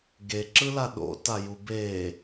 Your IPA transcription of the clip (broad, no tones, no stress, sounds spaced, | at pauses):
ɡ e ǁ ɯ l a ɗ o̰ t a j u b e